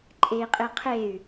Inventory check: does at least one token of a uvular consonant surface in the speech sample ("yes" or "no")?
yes